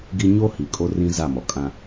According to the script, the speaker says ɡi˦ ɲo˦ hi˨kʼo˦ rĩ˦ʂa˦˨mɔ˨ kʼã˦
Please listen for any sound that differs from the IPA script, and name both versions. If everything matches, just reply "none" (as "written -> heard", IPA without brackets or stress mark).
ʂ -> z